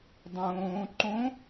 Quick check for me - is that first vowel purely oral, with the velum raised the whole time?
no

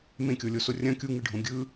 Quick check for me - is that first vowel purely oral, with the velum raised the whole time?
no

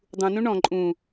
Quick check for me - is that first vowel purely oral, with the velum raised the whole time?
no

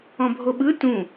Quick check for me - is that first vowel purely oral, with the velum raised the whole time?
no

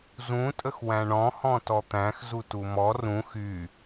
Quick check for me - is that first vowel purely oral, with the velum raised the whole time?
no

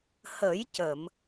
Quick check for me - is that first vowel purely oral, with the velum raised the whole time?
yes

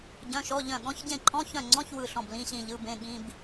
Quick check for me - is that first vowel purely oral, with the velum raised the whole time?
no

